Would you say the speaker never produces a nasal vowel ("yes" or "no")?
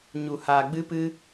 yes